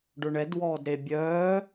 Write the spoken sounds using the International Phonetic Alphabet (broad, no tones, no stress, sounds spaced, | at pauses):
ɖ ʊ ɳ ɛ d w ɔː d ɾ e bʲ œː